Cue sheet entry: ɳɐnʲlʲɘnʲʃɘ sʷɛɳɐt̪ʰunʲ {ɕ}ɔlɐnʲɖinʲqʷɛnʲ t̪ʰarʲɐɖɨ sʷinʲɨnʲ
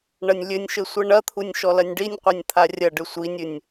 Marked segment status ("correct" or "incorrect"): incorrect